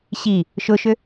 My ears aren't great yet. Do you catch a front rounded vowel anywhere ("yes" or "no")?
yes